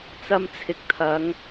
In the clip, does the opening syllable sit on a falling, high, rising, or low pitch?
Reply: low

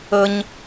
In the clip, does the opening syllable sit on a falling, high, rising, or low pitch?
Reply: high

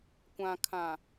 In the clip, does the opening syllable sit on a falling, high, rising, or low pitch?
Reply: low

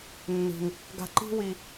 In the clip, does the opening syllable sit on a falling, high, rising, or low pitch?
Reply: high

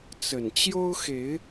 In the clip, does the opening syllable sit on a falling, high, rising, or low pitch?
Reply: low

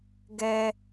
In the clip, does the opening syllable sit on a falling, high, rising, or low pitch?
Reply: high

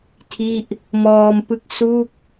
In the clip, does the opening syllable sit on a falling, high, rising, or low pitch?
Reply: falling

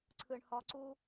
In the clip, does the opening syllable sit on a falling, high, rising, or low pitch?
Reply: low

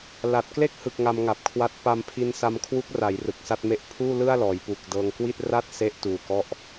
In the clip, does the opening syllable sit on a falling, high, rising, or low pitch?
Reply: low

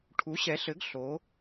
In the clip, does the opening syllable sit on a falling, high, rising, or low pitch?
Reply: rising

